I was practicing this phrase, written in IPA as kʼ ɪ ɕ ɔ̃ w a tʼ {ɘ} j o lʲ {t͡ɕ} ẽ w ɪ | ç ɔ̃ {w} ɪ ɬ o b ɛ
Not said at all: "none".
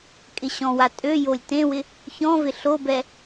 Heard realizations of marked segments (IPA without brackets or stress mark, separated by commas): ø, t, v